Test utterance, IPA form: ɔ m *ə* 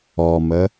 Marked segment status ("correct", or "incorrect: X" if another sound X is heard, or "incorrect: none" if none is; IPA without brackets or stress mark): correct